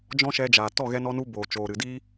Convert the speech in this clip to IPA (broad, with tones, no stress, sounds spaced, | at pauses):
d͡ʒ ɔ̃˦ ʃ ɛ˧ d͡ʒ aː˨ t ɔ˦˨ ɣ ɛ˧ n ɔ˧ n u˧ b oː˨ t͡ʃ oː˨ ɾ ɨ˨ d iː˦